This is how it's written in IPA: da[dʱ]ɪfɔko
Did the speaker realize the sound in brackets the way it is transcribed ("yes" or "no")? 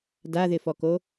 no